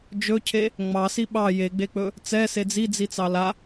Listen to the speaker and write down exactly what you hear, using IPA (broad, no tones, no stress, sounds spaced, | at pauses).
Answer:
d͡ʒ ɵ cʰ e | ŋ͡m ɑ s i ɓ ɑ j e ɡ͡b e k͡p ɵ | t͡s ɛ s e d͡z i d͡z i t͡s ɑ l a